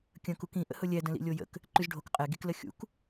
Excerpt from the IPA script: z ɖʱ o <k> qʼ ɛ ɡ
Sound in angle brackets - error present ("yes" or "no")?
no